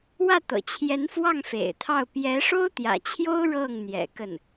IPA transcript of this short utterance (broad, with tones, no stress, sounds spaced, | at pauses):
w ä˥˩ t̪ ɤ̰˨˩ t͡ɕʰ j ɛ˧˥ n f w ɑ˥˩ ŋ f ḛ˨˩ ɪ̯ t̪ʰ ɑ˥˩ ʊ̯ p j ɛ˧˥ ʂ o˥ ʊ̯ t̪ j ä̰˨˩ t͡ɕʰ j o˥ ʊ̯ ɻ ɤ˥˩ ŋ n̪ j ɛ̰˨˩ k ə˥˩ n